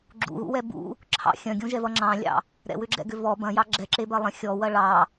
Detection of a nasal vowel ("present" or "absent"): present